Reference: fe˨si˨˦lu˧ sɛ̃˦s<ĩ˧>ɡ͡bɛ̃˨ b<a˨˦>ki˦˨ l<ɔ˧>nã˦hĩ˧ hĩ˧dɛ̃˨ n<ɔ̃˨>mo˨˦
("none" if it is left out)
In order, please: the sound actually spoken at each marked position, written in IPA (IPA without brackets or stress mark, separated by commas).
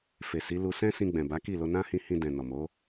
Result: ĩ˧, a˨˦, o˧, ɔ˨